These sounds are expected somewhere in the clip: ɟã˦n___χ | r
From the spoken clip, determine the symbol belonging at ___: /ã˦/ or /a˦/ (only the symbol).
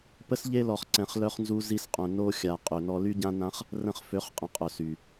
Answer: ã˦